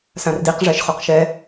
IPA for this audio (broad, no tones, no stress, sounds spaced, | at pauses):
s ã r d i q ʐ ɛ ʃ χ o q ʃ ɛ